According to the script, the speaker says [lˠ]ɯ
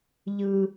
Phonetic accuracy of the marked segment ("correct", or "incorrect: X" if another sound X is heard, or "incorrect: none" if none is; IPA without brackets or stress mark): incorrect: ʎ